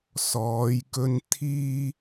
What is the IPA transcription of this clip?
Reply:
s ɔː˨˧ j k ɵ˧ n t̪ʰ iː˧

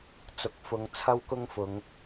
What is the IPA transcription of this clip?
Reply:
t͡s ʊ˨ k̚ f ʊ˨˧ ŋ t͡sʰ ɐ˥ w k ʊ˥ ŋ f ʊ˨˧ ŋ

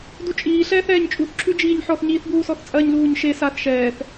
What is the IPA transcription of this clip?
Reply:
d u t͡ʃʼ iː ɬ ɛː θ ɛː ɲ t͡ʃʼ u θ ǁʰ ʉ d͡ʒ iː ɲ ħ ɔ θ ɲ iː θ b uː s ɔ θ t͡sʼ ɜ ɲ l uː ɲ ʃ e s a θ ʃ ɛː θ

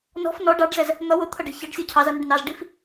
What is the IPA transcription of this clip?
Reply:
n ɔ̤ f n ɔ ɖ ɑ ɖ z ɛ z | n̪ ʌ w ʊ t̪ʰ ʌ ɖ ɛ̤ ç ɑ ɖ sʲ ɔ cʰ ɑ z ʌ n ʊ ɖ n ɑ z ɖ i f

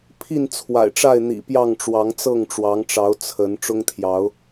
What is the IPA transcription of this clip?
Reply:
pʰ i˥˨ n t͡sʰ w a̰˨˩ ɪ̯ ʈ͡ʂ a˥˨ ɪ̯ n̪ ḭ˨˩ p j ɑ˥˨ ŋ ʈ͡ʂ w ɑ˨˦ ŋ t͡s ɤ˥˨ ŋ ʈ͡ʂ w ɑ˨˦ ŋ ʈ͡ʂ ɑ˨˦ ʊ̯ t͡sʰ ə˨˦ n ʈ͡ʂ ʊ˦ ŋ t̪ʰ j ɑ˨˦ ʊ̯

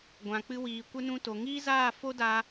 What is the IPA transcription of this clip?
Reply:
ɡʷ ã˨ k͡p ɨ˧ w iː˨ kʷ ə˧ n ũ˧ t o˨ ŋ iː˦ z aː˦˨ f o˦ d a˧

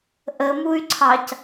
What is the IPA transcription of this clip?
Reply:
ʔ ə m u y̯ ǀʰ ɑ c

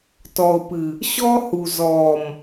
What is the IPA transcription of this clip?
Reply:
t ɔ˨ ʊ̯ p ɨ˨ | ɕ ɔː˦ h u˨ z ɔː˨ m

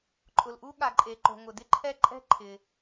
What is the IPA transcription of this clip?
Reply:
ǃʼ ʊ˩ l ʔ u˥ ɠ a˩ ǃʼ e˩ ǃ o̤˩ ŋ ʊ˩ d ɪ˥ ǃʰ ɛ˥ ǃʼ ɛ̤˥ ǃʰ ɪ˩

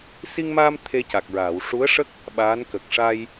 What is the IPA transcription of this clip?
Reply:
s i˧ ŋ m aː˧ m t̪ʰ e˧ c a˨˩ k̚ ɹ aː˨˩˨ w ʂ u˧˥ ə̯ ʂ ə˦˥ k̚ | ɓ aː˧˥ n k ə˨˩ k̚ ʂ a˧ j

